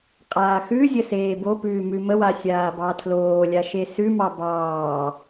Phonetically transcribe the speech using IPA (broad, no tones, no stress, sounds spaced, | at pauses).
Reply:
qʼ aː x ʉ zʲ ə s eː b o p ʉː m ʉ m ə w a sʲ aː b ɑ tʰ l oː lʲ a ʃ e s ʉ m ɑ b ɑː